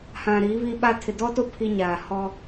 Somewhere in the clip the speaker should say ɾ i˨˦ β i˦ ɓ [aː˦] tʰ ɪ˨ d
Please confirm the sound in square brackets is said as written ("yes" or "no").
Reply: no